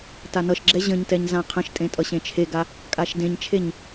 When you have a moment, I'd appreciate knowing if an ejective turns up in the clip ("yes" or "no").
yes